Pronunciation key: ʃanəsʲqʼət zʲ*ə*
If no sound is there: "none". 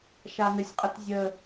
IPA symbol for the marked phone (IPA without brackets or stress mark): ə